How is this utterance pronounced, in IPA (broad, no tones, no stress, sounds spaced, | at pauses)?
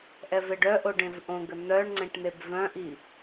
ʔ ɛ v e ɖ œ ʔ o ɖ ẽ v ʔ õ ɡ ə n̪ œ ɳ ŋ͡ǀ ẽ ʈ n̪ e b v œ̃ ʔ i